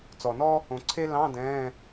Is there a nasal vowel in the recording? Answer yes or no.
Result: yes